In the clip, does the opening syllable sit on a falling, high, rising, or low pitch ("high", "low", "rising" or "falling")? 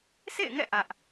falling